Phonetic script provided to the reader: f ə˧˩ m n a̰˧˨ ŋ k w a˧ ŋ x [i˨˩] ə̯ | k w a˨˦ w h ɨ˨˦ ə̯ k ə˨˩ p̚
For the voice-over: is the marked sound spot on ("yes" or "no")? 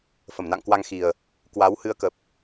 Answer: yes